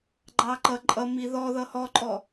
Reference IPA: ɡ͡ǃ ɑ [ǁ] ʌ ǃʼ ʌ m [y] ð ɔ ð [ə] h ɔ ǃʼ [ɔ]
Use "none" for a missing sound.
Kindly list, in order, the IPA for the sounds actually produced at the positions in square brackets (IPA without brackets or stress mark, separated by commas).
ǃ, i, ʌ, ɔ